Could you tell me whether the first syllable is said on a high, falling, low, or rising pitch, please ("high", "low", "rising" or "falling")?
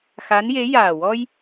rising